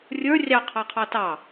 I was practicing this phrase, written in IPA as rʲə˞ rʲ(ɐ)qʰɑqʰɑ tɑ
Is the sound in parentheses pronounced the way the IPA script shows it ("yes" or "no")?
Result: no